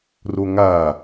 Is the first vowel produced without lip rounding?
no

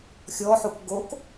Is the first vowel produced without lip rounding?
no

